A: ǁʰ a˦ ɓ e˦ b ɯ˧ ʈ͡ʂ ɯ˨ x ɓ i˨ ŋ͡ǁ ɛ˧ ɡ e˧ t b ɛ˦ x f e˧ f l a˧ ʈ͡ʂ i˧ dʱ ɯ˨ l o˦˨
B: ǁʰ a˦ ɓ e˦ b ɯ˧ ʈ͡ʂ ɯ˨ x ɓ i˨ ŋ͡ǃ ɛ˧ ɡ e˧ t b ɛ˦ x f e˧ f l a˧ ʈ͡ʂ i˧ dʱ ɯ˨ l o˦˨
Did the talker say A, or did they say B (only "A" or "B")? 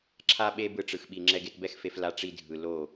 A